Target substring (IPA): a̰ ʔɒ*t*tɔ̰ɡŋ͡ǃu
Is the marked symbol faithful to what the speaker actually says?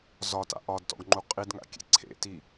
no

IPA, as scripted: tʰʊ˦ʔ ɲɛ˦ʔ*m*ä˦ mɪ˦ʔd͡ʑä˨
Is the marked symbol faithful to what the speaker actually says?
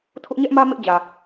yes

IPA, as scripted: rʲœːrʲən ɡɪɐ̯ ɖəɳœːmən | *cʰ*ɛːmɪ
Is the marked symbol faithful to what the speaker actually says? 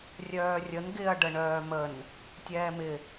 no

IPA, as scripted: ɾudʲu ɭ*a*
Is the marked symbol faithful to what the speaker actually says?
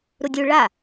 yes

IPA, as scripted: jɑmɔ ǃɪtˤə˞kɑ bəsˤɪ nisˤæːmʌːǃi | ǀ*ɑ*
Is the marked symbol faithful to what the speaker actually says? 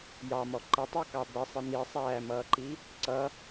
no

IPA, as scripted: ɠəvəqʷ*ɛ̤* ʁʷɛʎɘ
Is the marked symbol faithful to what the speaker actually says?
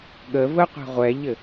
yes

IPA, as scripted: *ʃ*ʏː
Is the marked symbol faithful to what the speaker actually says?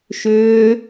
yes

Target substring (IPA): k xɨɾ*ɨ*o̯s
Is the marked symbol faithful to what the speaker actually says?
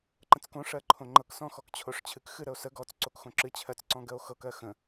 no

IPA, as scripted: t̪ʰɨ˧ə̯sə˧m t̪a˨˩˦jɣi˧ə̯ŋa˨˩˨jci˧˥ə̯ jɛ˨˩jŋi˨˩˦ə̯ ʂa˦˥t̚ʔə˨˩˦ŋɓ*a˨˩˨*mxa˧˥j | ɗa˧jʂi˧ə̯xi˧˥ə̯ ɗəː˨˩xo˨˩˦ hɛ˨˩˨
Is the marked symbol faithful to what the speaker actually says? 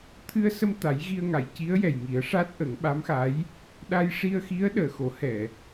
no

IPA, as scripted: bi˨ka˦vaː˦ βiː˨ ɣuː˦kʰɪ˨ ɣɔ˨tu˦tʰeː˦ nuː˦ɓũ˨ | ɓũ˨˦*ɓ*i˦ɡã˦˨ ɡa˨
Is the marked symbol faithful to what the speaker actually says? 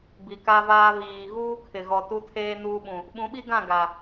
yes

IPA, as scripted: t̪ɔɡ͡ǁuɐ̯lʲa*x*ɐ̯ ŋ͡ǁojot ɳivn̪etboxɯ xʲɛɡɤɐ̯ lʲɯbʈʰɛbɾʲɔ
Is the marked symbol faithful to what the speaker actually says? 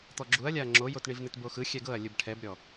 no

